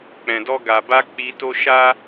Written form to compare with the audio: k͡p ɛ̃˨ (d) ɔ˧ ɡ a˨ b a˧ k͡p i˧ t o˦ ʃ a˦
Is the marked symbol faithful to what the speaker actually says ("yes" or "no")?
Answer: yes